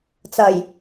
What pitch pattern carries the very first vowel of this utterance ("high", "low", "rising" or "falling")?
low